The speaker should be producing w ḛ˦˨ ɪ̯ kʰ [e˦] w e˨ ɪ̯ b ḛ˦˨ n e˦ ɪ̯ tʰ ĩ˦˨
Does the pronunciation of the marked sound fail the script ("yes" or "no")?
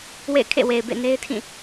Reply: yes